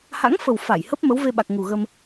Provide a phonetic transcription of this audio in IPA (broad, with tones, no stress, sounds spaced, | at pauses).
h a̰˧˥ ŋ f ə˨˩ w f a˧˩ j h ə˦˥ p̚ m ə˨˦ w v e˧ ɓ a˨˩ k̚ ŋ u˨˩ ɣ ə˧ m